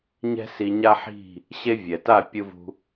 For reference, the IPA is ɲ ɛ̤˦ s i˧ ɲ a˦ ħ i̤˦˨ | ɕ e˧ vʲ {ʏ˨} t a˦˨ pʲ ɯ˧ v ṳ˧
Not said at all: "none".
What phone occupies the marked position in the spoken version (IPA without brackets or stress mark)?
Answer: ɛ˨